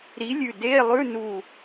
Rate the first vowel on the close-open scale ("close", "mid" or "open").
close